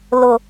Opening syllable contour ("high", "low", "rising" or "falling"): low